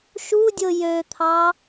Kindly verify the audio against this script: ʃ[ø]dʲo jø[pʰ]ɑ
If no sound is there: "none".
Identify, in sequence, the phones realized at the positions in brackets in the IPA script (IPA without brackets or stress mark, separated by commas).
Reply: u, t̪ʰ